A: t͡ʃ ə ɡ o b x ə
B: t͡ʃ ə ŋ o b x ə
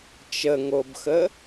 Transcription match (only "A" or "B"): B